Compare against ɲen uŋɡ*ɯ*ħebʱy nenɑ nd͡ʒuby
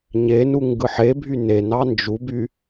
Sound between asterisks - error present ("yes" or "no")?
no